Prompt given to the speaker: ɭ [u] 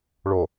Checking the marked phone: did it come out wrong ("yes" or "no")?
yes